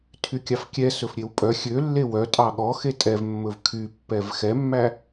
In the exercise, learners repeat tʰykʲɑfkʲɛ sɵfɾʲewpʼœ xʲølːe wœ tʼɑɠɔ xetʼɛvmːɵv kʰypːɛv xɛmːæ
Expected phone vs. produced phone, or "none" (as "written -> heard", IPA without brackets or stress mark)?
none